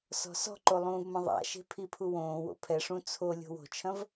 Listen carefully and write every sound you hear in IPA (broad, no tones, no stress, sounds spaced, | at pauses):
s ɔ̤ s ɔ̤ ǃ o lˠ ũː v m ɐ̃ ðˤ a̰ ʃ e̤ pʰ i pʰ u w õː w o̰ pʰ ɛ ʂ ũ t͡sʰ o lʲ o̤ w o̤ t͡ʃʰ ɐ̃ v